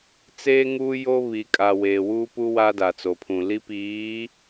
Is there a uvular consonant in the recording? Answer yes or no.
no